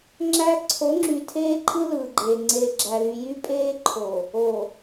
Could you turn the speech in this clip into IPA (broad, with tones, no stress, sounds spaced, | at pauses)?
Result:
ŋ͡ǁ æ˦ ǀʰ o˨˦ ŋ͡ǁ y˨ tʰ eː˦ ǃʼ ɯ˦ l ɯː˨ ɡ͡ǃ eː˨ ŋ͡ǀ eː˨ ɡ͡ǁ æ˨ l y˨ j y˦ pʼ eː˦ ǃʰ o˨ | o˨